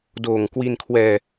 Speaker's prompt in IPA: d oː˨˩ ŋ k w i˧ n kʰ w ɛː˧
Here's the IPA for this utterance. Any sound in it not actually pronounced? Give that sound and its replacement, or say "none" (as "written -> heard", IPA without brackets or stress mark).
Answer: none